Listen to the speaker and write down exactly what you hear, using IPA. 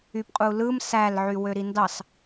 y p qʼ u l ɯ m s æ l ʕ y w ø ɾ i n d ɑ s

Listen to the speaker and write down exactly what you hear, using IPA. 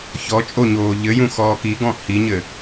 ç ɔ t͡ʃʼ o ɲ oː ʎ ɘ j ũ x ɔː k i ɡ ɔ̃ h i ɲ ɘ

